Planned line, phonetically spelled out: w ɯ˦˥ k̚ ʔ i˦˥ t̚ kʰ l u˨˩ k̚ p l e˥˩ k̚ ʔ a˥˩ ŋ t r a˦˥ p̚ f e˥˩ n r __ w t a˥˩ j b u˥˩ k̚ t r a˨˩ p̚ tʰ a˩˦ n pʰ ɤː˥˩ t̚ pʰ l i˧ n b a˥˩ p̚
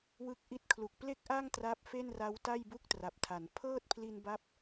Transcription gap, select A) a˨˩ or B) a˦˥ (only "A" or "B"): B